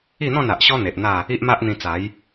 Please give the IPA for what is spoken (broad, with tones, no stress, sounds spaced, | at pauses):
i˥˧ n̪ ɔ̃˥˧ n a˨ ʔ ɕ ɔ˦ n̪ e˨ ʔ n̪ a˥˧ | i˦ ʔ m a˦ ʔ n̪ ĩ˧ t͡s a˨˦ j